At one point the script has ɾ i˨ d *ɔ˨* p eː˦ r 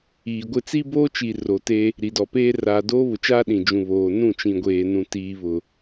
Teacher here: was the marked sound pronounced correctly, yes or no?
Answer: yes